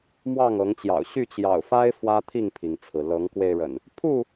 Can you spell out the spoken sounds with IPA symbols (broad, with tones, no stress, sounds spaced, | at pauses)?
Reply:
m w ɑ˥˨ ŋ ɤ˨˦ ŋ t͡ɕ j ɑ̰˨˩ ʊ̯ ɕ y˥˨ t͡ɕ j ɑ̰˨˩ ʊ̯ f a˦ ɪ̯ f w ä˦ t̪ʰ i˥˨ ŋ pʰ i˩ ŋ t͡sʰ ɹ̩˩ l ɤ˨˦ ŋ k w e˧ ɪ̯ ɻ ə̰˨˩ n | pʰ u˥˨